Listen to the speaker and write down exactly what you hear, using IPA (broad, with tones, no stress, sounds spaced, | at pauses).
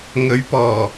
ŋ ɵ˨˥ ɥ p ɔː˨˩